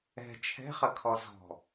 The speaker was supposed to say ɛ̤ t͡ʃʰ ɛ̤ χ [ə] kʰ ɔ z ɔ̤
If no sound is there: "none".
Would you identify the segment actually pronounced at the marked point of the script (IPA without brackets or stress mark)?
ə